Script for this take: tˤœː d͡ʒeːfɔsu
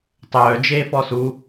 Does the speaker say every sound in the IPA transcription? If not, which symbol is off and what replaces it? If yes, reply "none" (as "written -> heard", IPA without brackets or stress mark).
none